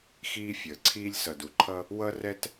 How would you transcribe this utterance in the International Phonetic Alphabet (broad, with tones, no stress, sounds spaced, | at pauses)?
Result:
x iː˥ fʲ əː˩ ǀʰ iː˥ lʲ s ʌ˩ d u˩ ǃʰ ʌ˥ | w ʌ˥ r ɛ˥ t